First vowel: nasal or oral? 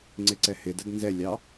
oral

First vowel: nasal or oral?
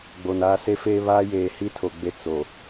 oral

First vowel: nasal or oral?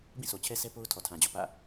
nasal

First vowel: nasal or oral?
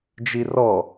oral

